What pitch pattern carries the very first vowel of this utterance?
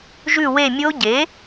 falling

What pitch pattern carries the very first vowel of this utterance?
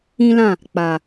high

